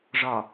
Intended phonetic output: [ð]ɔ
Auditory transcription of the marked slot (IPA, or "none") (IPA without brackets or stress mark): ʐ